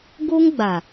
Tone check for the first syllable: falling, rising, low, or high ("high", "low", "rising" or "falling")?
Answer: high